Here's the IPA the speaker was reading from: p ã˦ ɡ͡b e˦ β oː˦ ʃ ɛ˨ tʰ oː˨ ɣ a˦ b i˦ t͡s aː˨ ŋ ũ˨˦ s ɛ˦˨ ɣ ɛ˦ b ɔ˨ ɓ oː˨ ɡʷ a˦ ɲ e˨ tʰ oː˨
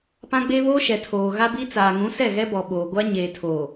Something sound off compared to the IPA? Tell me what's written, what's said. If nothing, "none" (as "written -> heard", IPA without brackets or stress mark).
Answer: none